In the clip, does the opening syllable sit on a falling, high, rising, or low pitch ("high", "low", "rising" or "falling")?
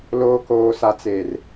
low